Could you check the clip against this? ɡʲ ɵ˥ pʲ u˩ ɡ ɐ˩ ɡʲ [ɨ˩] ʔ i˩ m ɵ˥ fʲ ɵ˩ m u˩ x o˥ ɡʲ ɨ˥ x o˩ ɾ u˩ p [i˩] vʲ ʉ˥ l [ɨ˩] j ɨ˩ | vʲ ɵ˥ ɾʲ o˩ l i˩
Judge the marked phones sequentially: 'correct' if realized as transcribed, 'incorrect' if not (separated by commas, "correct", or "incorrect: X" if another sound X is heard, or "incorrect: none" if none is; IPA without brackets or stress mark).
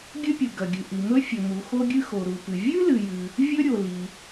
correct, incorrect: ɨ˩, correct